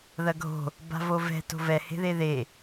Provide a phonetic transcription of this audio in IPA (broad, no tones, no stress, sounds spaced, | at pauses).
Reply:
ð ɐ ɡʱ o̤ | b a̤ v o v ɛ̤ t o̤ v ɛ h e̤ ð e ð e